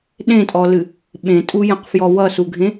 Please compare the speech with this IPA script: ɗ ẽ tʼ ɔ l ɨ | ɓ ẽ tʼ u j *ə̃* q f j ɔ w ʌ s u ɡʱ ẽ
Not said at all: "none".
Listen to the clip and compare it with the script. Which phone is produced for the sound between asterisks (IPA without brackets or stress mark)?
ə̃